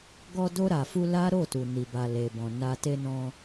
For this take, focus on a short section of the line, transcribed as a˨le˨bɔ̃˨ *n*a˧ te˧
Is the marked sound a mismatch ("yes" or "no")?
no